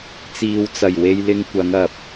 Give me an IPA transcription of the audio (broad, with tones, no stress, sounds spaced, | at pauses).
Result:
t͡s iː˨ w t͡s ɐ˨˩ j w e˧ j l ɪ˧ ŋ kʷ ɐ˨˧ ŋ ɐ˨ p̚